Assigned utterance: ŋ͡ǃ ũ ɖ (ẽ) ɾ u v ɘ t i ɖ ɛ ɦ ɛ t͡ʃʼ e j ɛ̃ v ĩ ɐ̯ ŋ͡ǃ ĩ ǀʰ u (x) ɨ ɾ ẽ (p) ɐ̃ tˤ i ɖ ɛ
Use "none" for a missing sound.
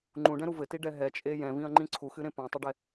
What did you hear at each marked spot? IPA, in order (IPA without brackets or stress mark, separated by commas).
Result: ɛ̃, x, p